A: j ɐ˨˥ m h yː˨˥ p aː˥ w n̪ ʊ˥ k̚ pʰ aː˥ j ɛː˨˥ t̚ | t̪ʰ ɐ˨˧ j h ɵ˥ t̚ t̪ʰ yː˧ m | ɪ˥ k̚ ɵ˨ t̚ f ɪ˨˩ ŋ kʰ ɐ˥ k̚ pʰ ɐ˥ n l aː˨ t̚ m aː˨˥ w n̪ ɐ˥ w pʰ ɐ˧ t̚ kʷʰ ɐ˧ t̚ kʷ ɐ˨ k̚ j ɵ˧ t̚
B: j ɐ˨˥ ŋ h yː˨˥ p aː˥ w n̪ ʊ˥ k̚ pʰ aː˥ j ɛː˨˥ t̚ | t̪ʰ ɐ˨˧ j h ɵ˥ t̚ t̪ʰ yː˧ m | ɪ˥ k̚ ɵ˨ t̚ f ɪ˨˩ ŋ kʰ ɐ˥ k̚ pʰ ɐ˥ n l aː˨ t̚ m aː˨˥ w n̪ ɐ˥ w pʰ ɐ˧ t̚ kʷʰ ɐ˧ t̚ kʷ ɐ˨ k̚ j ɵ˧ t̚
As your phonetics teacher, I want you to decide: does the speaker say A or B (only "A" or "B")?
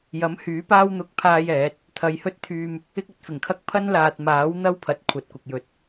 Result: A